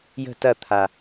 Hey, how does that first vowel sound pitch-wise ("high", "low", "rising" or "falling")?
falling